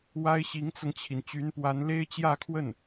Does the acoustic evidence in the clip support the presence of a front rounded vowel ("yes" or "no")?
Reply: yes